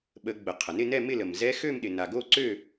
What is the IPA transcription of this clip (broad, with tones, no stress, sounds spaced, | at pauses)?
ɓ ə˨˩˦ ɡ͡b ə˩ qʰ ə˩ n ɪ˥˨ n ɛ˥˨ m ɪ˥˨ l ə˩ m z ɛ˧˥ x ø˥˨ m ɗ ɪ˩ n a˩ ɡ o˥˨ ǀ ø˥˨